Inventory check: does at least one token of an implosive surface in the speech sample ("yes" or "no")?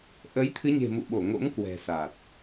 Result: yes